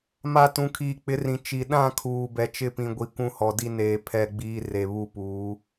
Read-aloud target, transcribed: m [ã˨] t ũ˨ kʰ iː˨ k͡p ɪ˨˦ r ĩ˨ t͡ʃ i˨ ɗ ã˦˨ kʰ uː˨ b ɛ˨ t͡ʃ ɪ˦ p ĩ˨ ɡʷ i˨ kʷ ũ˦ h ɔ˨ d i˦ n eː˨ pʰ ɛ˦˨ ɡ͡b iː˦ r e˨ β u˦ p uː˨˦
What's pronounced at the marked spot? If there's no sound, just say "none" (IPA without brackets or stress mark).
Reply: a˨